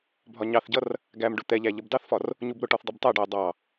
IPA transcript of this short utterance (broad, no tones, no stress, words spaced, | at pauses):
bʱɒɲɑθɟʌr | ɡæmɖʊ t̪ɛʎæ ʎʌbdɑθfɒr | ɲubɾʊʈɔθ dˤubtˤæɖʌʊ̯ dˤɑ